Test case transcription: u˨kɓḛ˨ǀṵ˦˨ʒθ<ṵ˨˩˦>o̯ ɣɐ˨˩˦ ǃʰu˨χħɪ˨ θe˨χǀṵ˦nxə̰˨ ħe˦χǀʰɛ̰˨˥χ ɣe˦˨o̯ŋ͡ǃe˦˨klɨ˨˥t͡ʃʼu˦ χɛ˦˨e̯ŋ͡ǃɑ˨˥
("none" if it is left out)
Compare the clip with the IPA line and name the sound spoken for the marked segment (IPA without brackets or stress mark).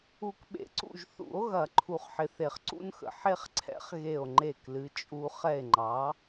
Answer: ṵ˨˩˦